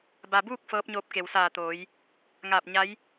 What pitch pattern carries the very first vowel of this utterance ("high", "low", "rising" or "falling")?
low